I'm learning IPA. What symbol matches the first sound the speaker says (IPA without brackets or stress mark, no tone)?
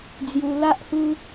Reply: d͡z